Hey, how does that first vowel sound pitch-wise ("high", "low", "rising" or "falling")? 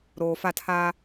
low